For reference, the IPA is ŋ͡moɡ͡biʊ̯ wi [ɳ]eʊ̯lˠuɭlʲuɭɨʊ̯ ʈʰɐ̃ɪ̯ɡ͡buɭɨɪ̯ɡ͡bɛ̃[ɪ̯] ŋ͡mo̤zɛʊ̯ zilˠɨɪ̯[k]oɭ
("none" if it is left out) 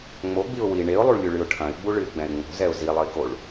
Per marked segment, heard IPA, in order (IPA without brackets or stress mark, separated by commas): ɳ, ɪ̯, k